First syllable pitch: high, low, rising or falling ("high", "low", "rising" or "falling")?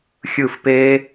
falling